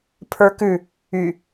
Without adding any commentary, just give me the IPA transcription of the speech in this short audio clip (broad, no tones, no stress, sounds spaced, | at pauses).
pʰ ə˞ k ʉ | y